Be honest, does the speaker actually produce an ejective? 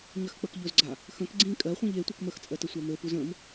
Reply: yes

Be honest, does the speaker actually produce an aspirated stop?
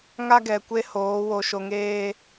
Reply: no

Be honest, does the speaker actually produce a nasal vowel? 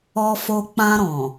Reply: yes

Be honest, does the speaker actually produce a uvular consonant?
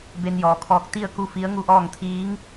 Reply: no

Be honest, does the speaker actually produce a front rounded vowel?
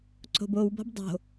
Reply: no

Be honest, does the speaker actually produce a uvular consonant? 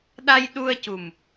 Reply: no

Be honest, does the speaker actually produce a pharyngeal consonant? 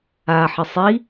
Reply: yes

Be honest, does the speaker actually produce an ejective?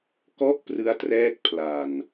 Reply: no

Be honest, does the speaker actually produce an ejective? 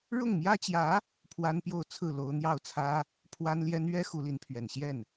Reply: no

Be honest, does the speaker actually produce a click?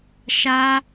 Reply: no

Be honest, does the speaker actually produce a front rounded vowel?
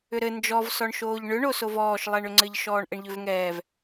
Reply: yes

